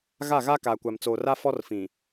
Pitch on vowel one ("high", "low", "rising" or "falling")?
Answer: falling